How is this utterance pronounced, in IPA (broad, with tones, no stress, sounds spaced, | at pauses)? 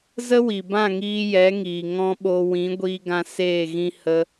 z ə˦ w i˨ b ã˦˨ ŋ iː˧ j ɛ˨˦ ŋ iː˨ ŋ ɔ̃˦ ɓ o˧ w ĩ˨˦ ɡʷ iː˧ ɡ ã˧ s eː˦˨ ɣ ĩ˦ h ə˧